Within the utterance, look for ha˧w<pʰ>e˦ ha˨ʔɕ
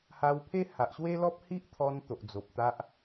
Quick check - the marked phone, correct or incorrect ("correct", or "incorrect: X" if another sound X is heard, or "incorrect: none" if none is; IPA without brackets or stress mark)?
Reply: correct